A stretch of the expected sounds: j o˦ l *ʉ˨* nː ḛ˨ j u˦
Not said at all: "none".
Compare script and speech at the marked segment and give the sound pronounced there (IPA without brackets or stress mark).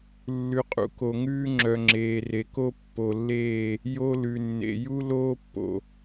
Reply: ʉ˨